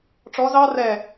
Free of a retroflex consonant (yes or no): no